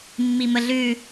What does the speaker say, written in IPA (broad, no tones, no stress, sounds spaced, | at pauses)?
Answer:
mː i m ə ɮ ʉ